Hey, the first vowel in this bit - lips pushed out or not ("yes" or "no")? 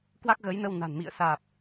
no